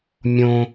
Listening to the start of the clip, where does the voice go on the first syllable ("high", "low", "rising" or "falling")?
high